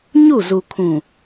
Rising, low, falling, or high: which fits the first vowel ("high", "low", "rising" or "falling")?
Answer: falling